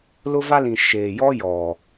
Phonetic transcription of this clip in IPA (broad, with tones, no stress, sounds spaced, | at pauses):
l ʊ˦ v a˦ l ĩ˨ ʃ eː˨ j ɔ˦ j ɔ˨